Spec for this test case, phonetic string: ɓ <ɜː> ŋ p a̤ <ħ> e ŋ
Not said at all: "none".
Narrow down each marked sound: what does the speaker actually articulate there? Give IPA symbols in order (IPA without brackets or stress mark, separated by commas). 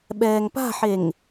ɛː, ħ